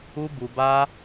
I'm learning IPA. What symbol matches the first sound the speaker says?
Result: u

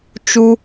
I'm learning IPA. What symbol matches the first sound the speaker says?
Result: t͡ʃ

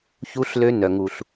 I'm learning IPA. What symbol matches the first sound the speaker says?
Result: ç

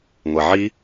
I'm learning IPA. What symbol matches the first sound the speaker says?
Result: ŋʷ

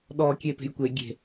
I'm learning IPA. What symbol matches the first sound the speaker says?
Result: ɗ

